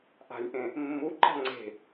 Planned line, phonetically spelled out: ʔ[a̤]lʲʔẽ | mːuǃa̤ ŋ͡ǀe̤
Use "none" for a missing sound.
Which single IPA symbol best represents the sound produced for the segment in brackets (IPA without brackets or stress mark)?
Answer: a̤